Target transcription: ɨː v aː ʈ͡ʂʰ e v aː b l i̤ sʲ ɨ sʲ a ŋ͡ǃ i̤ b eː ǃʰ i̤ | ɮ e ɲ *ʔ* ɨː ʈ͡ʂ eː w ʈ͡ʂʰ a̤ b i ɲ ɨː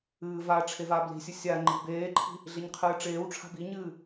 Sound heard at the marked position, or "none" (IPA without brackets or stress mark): qʰ